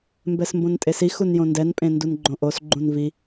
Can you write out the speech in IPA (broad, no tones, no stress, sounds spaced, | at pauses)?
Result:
m b ɛ s m b õ n tʼ e s i x u n j õ n d ɛ n pʼ ẽ n d u n ɡ͡ǃ õ ʔ o s ɡ͡ǃ ũ n v i